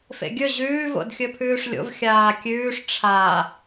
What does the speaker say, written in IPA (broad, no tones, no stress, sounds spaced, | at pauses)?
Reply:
f ḛ ɡʲ ɵ ʑ ʉː v o̰ d xʲ ɵ pʰ ʉː ʂ lʲ o̰ v xʲ aː kʲ ʉː ʂ ʈ͡ʂʰ a